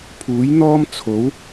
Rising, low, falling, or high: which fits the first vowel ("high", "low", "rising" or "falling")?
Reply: rising